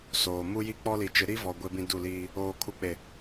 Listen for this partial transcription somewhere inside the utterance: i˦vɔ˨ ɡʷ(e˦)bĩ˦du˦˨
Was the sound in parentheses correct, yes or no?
yes